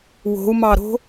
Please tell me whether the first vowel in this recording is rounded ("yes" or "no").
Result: yes